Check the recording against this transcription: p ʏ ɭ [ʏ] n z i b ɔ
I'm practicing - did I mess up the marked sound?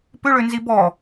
no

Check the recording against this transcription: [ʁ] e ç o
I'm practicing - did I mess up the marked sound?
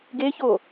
yes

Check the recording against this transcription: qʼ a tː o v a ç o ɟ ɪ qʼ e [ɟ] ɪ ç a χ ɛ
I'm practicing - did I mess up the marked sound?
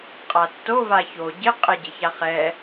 no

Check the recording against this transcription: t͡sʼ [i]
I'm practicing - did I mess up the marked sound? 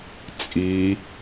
no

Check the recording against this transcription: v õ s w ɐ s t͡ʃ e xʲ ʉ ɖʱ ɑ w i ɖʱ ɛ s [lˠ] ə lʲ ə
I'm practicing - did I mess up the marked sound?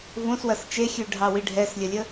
yes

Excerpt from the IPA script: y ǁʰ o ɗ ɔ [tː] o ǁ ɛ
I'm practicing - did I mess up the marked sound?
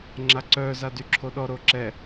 yes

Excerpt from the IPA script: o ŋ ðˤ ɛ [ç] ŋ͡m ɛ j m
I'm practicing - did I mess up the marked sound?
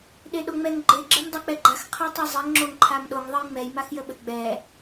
yes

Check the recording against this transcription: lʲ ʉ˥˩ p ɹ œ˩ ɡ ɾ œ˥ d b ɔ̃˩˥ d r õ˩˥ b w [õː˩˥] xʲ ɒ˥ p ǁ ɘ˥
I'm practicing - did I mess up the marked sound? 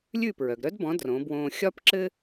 yes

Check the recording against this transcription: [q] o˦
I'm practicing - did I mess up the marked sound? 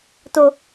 yes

